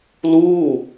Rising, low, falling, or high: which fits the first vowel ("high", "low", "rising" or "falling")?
falling